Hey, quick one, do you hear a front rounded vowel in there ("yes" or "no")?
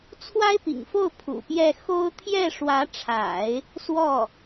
no